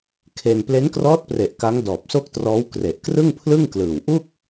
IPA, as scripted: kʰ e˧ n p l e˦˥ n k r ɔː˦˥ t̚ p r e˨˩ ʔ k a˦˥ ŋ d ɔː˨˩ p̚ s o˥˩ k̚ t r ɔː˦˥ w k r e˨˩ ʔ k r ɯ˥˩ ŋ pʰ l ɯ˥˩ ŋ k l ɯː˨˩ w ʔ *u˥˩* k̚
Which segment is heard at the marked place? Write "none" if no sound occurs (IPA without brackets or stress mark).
u˥˩